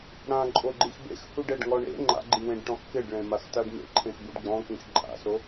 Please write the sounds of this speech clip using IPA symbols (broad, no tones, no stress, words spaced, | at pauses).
ɽãǃʼoɡ͡ǃix bḛxhuɖɛɖŋɔ ɳḛ ŋ͡ǃa̰ɡ͡ǃiwẽɖʈɔ̃x kɪɖɭẽmaxtaɖ mḛǃʰẽxbuɖ ɡ͡bɔ̃kĩx ǃʼa̰so